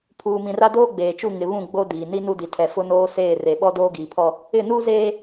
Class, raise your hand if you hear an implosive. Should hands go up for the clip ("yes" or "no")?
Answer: yes